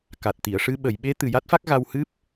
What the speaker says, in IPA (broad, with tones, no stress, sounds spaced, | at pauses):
k a˨˩ t̚ t̪ i˨˩˨ ə̯ ʂ ɨ˧ ɓ ə˨˩˨ j ɓ e˧˥ t̪ ɨ˨˩ j a˦˥ t̚ f a˦˥ k̚ ɣ a˧ w h ɨ˦˥ p̚